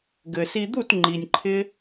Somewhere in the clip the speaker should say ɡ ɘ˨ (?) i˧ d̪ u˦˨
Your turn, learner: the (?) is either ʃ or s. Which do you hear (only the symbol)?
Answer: s